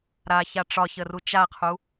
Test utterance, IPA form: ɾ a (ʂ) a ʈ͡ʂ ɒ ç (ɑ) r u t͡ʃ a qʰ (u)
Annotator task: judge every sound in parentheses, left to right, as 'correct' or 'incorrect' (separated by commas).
incorrect, incorrect, correct